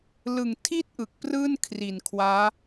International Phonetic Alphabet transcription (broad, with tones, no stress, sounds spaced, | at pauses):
l ɯ˨˩ ŋ tʰ i˥˩ t̚ ʔ ɯ˨˩ k̚ p r ɯː˥˩ n kʰ r i˨˩ n kʰ w aː˦˥